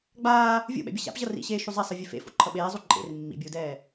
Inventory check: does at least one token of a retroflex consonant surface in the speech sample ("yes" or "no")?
no